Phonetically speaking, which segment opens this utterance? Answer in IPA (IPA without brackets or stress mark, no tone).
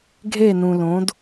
ɡʱ